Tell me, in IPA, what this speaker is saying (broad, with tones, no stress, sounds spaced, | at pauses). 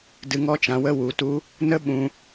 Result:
d ɨ˧ ŋ ɔ˦ t͡ʃ ã˧ w ə˦ w u˧ t u˦ | n ə˦ ɓ ũ˧